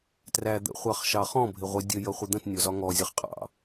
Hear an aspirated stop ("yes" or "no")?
no